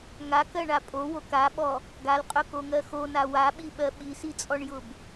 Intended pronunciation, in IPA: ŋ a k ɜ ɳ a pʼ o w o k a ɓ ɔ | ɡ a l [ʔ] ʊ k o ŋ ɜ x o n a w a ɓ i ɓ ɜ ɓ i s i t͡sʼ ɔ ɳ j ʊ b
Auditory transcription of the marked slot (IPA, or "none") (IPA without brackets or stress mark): qʼ